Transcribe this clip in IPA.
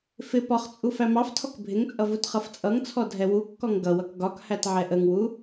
f ɪ p ɒ χ t͡sʼ u f æ m ɑ f tʰ ɔ k bʱ ɪ ŋ t͡sʼ ʌ v u t χ ʌ f t͡sʼ ʌ ŋ t͡sʰ ɔ dʱ ɛ w u kː ɔ ŋ ɡ ʌ w ʌ k ɡ ɒ k h æ t ʕ ɛ ʔ ə ŋ w u

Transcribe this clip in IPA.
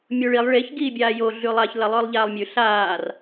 mʲ o ɭ i lˠ ɭ e ç ɡ iː bʲ aː j o ɮ ʉ lˠ a ç l ɐ lˠ ɵː lˠ ʎ aː lˠ mʲ ʉ ɬ aː r

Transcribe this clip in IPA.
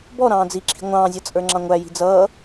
b ɔ ɾ ɑ̃ː d͡z i ǁʰ i̤ ŋʷ ɑ̃ː zʲ ʌ t͡sʼ ə˞ ŋ͡ǁ ɑ̃ ŋʷ æ j i̤ d͡z ʌː

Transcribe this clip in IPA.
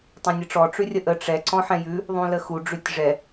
tˤ ɛ̃ nʲ ə ʈ͡ʂ ɔ ʈ͡ʂ ʉ rʲ ə ʔ ə ʈ͡ʂ ɛ ǀ ɔ̃ ħ ɛ̃ j ʉ | ðˤ ũ l ə x u ɖ͡ʐ ʉ tʲ ʐ ɛ

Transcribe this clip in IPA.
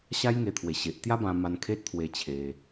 ɕ a˦ j ŋ e˧ t̪ʰ w e˨˩ ɕ e˨ ʔ t̪ j a˦ b ã˧ m a˧ n kʰ e˦ t̚ t̪ʰ w e˧ t͡ɕʰ e˧

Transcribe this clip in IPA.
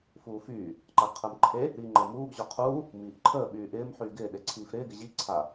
f uː f yː | ǃ a ɡ qʰ əː m ǃʰ e | ɾ iː ŋ͡ǃ əː m uː ɡ ʑ ɔ qʰ uː | m iː ʔ ǃʰ əː ɓ yː ʔ ɪː m ħ yː ɡ ɪː ɗ e ǀʰ iː f ɾ ɪː ɡ ɪ ʑ i ǀʰ a

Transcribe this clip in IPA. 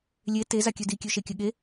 lʲ e t e z a kʲ ø d i kʲ ø ʃ e kʲ ɘ ɠ e

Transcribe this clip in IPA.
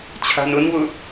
t͡ɕʰ a̤ n ʊ n w ʊ

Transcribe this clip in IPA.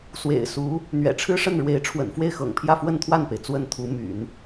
s w ḛ˨˩ ɪ̯ s u˧˥ | n̪ ɥ ɛ̰˨˩ ʈ͡ʂʰ ɻ̩˥ ʂ ə˥˩ n ɻ w e˧˥ ɪ̯ ʈ͡ʂʰ w ə̰˨˩ n f w e˥˩ ɪ̯ x ɤ̰˨˩ ŋ pʰ j ä˥˧ f w ə˥˧ n t̪ʰ w a˥˩ n p e˩ ɪ̯ t͡s w ə˥˩ n t̪ʰ u˧˥ m y̰˨˩˦ n

